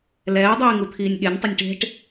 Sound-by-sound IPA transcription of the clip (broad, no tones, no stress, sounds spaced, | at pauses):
l ɛː dˤ iː ŋ u t̪ʰ iː nʲ ɠ e nʲ tˤ ɘ nʲ ʈ e̤ ʈ